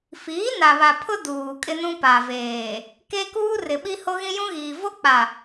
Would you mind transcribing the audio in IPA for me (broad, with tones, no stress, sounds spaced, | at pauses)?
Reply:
f iː˨˦ n a˨ β a˨ pʰ ʊ˦ d uː˨ kʼ ɪ˦ n ũ˦ p a˨ v eː˨ | k e˦ k uː˦ r ɪ˨ ɓ i˦ h o˦ ɣ ĩ˦ j ũ˦ ɣ iː˨ v o˦ k͡p a˨